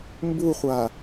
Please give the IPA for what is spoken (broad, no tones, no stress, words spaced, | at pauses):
mbuχʷa